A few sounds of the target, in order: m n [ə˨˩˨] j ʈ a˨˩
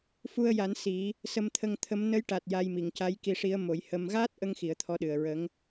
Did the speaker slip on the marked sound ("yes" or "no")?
yes